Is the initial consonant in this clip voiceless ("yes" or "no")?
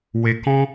no